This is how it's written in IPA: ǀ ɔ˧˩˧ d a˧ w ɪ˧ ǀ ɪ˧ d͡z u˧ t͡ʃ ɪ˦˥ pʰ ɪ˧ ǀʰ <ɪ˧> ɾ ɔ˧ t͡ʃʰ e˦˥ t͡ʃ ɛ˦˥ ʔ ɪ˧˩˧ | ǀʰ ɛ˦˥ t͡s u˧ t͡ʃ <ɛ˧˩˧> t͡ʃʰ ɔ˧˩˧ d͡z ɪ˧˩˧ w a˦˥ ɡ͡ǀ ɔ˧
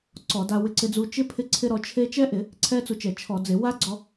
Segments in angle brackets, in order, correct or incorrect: correct, correct

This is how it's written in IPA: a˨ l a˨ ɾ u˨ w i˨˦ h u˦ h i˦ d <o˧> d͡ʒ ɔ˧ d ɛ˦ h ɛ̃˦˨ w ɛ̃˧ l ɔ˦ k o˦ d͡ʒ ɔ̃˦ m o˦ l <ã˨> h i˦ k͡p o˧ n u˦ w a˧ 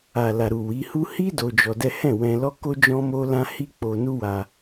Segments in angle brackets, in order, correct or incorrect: correct, incorrect: ã˦

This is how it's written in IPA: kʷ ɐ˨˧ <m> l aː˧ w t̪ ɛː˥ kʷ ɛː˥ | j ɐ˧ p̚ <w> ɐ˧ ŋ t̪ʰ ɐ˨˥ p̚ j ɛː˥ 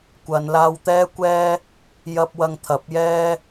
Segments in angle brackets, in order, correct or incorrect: incorrect: n, correct

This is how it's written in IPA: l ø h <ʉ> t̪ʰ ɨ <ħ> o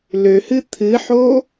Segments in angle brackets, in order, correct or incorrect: incorrect: ɨ, correct

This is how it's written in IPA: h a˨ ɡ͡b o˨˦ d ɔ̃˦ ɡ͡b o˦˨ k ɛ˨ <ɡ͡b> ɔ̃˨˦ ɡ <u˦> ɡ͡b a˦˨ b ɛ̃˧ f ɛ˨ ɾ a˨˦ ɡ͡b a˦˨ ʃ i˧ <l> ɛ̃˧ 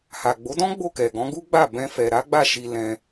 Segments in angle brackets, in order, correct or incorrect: incorrect: ɡ, correct, correct

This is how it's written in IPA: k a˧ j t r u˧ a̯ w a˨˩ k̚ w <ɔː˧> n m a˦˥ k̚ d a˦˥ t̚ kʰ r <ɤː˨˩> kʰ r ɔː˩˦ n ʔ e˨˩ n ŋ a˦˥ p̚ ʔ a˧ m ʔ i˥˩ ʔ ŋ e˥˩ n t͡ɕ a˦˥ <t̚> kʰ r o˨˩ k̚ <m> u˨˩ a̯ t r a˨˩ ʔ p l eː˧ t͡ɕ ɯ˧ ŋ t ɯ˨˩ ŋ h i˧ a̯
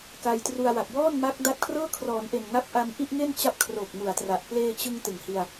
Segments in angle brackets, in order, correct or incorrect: incorrect: ɔː˥˩, incorrect: ɤː˥˩, incorrect: p̚, correct

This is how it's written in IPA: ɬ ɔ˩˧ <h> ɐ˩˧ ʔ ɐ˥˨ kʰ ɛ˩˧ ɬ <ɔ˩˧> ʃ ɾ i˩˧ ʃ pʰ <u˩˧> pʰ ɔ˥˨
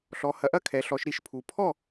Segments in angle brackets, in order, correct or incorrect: correct, correct, correct

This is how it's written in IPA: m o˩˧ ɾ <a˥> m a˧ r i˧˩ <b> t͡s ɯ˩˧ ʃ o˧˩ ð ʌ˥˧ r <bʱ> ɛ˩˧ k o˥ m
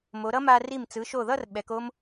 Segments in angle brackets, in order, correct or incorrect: incorrect: ʌ˥, incorrect: m, incorrect: ɓ

